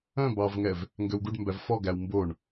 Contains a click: no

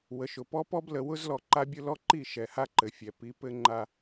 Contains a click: yes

